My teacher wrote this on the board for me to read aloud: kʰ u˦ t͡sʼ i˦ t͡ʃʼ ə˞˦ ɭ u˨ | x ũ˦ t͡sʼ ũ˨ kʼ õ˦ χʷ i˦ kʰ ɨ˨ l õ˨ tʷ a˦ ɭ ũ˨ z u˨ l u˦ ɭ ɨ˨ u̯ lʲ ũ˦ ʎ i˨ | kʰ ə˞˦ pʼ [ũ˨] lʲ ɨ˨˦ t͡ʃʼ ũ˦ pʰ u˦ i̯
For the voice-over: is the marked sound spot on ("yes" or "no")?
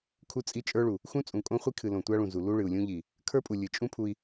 no